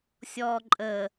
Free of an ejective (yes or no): no